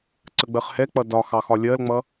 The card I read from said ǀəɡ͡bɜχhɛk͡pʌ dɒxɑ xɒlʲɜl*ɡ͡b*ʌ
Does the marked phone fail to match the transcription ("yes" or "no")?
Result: yes